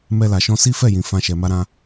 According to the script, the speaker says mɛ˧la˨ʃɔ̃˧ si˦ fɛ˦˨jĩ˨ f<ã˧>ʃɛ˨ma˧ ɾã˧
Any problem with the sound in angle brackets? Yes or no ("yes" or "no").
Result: no